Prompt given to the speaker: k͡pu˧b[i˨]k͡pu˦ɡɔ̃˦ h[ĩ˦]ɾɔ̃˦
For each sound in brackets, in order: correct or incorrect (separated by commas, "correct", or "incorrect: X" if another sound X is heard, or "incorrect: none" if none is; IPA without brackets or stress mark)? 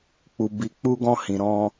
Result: incorrect: i˧, incorrect: ĩ˧